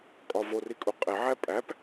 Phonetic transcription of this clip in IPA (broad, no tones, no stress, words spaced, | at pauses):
kʼɒvori kʼuqʼeʕæ pʼæp